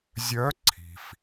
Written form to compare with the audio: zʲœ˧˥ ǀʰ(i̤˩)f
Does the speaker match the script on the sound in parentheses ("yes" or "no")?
yes